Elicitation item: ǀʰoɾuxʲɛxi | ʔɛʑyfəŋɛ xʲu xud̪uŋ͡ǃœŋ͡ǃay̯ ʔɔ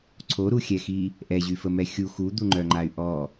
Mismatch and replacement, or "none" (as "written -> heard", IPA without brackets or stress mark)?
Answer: ŋ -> m